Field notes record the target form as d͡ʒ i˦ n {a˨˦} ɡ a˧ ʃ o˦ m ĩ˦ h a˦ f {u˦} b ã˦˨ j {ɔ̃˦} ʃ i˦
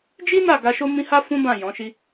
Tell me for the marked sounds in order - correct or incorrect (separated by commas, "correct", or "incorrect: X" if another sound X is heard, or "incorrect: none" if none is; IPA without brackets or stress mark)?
incorrect: a˦˨, incorrect: ũ˦, incorrect: ɔ̃˨˦